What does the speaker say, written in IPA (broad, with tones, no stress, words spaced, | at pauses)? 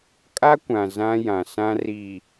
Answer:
kʼa˦kʷã˨ zã˦jã˨sã˦ ri˨